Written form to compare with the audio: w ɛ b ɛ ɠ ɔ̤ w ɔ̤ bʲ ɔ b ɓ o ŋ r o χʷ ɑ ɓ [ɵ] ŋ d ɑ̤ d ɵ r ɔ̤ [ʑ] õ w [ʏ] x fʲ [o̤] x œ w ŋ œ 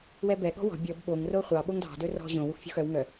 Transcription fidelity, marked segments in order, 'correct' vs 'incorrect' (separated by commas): incorrect, correct, incorrect, correct